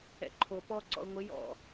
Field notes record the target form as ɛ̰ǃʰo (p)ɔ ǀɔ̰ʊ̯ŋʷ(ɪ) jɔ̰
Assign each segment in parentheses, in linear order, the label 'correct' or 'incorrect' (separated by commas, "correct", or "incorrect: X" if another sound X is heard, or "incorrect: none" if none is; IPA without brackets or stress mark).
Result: correct, correct